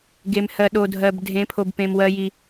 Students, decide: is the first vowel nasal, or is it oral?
oral